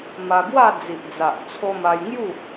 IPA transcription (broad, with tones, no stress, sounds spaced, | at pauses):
m a˧ ɡ w a˥˧ d͡z i˨ ʔ d͡z a˨ ʔ t͡sʰ o˧ m a˧ j ŋ j u˥˧